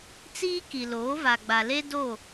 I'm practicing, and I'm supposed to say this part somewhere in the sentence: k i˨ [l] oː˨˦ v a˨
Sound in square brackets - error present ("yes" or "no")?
no